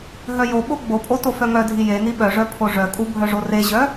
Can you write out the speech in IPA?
ɦœjoɓo ɡ͡bopʼo tofœŋœdʱi jeni ɓœʐœ pʰoʐœkʼu bʱœʐoreʑœ

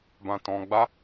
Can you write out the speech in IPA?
bã˧tɔ̃˧ɡ͡ba˦

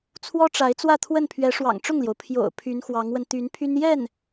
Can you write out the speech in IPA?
t͡sʰwɔ˥ʈ͡ʂa˧˥ɪ̯ t͡swä˥˧t̪ʰwə˥˩npʰɥɛ˧˥ ʂwɑ̰˨˩ŋʈ͡ʂʊ˥˩ŋljo˩ʊ̯ pʰjo̰˨˩ʊ̯ pʰy˧˥nxwɑ˧˥ŋwə˧n t̪y˧˥npʰy˥n jɛ˥˩n

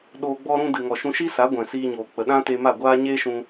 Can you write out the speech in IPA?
ɗoː˧ɡ͡bɔ˦ɾũ˦ dɨ˨ŋɔ˨ʃũ˧ʃi˦ sa˨˦ ɡʷɛ̃˨siː˧ɲoː˨ k͡pə˨ ɗã˦te˧ma˦˨ ɡʷaː˦ɲe˦ʃũ˧

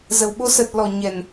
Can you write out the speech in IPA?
zə˨˩w ɓo˨˦sə˨˩t̚ lɔ˨˩ ɲɛ˨˩n

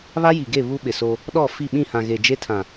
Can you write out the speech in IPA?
βa˦ji˨ɡe˦˨ βu˦ɓɪ˨so˦ | ɗɔ˦˨ fi˦˨ɓĩ˦˨hã˨ ɣe˨d͡ʒe˦tʰã˨

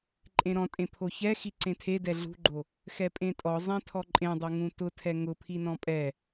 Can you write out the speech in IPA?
ǃʼẽɾɔ̃tʼẽ pʰoçɛ xiǀẽtʰe dɛɮṳɡ͡ǃo | xɛpʼẽtʼɔ zˤẽtʰɔǃʼẽdˤo ŋũtʊtʰɛ ŋʊpʰinɔ̃ pʼɛ

